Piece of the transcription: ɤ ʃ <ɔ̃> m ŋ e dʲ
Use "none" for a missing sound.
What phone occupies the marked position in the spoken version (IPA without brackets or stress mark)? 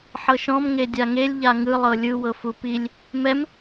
ɔ̃